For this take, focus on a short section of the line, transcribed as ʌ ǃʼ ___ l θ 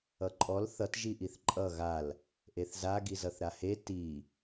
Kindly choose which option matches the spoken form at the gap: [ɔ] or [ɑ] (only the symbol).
ɔ